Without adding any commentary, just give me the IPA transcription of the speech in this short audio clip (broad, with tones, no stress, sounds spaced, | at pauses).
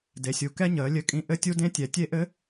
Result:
d e˨˦ sʲ u˨˦ k ɛ˦˥ ɲ əː˨˦ lʲ ɘ˦˥ kʼ ĩ˦˥ ʔ ɘ˦˥ tʲ u˦˥ d ẽ˦˥ tʲ ɛ˨˦ tʲ e˦˥ ʔ ɘ˦˥